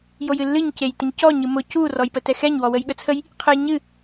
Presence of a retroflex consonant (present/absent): absent